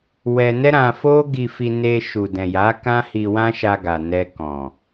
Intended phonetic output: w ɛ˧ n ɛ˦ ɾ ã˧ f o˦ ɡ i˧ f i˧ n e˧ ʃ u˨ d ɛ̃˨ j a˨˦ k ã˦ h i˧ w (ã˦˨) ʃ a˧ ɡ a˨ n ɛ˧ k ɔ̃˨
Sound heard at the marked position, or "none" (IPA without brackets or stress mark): ã˦